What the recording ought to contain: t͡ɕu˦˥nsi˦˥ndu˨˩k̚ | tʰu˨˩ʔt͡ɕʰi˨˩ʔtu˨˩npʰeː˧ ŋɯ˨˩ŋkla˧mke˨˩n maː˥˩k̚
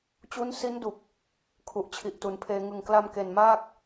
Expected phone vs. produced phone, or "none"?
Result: tʰ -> kʰ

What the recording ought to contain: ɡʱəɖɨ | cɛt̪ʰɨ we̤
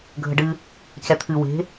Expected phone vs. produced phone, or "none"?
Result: none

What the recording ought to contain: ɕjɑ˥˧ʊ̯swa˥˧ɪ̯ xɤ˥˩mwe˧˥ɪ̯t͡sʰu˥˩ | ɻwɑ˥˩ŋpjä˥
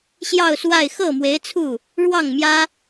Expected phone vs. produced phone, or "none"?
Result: p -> m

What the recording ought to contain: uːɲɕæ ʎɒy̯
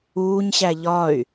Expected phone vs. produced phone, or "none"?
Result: none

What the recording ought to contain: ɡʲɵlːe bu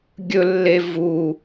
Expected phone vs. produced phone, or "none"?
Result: b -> v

